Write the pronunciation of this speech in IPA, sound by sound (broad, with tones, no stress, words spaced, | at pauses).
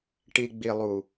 ʈi˨ɡ͡bi˨lˠu˨